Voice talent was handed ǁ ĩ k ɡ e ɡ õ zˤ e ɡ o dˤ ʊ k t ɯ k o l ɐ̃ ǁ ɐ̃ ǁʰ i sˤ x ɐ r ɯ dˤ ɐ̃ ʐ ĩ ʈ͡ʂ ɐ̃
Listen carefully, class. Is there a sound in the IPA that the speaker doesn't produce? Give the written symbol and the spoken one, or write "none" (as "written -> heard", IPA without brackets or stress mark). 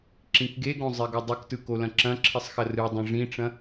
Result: none